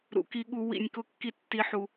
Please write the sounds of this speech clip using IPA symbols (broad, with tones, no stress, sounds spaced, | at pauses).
ɾ ṵ˨ k i˧ ɠ u˧ w ḭ˧ nʲ k ʊ˦ kː i˦ tː i˦ ħ u˧